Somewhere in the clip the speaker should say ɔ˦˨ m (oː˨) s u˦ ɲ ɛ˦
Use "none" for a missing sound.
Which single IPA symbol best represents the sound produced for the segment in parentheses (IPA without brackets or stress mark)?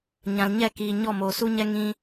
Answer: oː˨